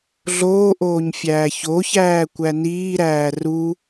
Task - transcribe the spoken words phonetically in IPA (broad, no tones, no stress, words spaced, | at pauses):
ɮoːʔoːɲ fʲæːçoçæː kʷæniːɾæː ru